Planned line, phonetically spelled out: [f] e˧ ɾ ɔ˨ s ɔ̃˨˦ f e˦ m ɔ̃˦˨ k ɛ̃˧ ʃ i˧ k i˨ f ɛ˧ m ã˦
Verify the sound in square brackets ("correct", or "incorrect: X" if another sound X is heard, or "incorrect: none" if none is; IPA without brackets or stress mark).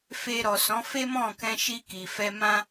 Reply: correct